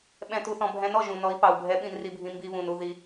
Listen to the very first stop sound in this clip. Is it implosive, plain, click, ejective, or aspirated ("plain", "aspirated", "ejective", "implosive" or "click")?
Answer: implosive